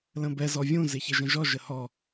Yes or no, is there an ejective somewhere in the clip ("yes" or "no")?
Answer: no